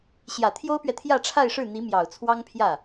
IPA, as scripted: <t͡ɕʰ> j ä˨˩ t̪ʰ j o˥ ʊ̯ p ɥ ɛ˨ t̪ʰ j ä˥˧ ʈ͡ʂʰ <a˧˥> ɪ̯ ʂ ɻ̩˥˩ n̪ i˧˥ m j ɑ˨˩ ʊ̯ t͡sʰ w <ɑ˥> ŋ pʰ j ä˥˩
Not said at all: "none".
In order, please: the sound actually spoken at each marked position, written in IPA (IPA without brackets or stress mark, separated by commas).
ɕ, a˥˧, ɑ˥